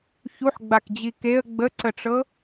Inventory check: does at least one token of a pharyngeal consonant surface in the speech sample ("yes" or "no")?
yes